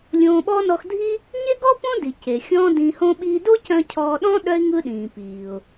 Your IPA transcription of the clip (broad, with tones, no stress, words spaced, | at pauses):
lʲõː˧ɓɔ˥ nɔ˧xdʱi˥ | ɲe˥ɡɔː˥ põ˥di˩ ce˩xʲɔ̃ː˥dĩː˧hõ˥ ɓiː˧do˥cœ̃˧ cʰɔː˧ɗɔ̃˥ ɗœ˥ɪ̯ ŋɯ˧ ɗĩː˩piː˩ʊ̯